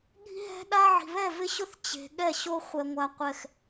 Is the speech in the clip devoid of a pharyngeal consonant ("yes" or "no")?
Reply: no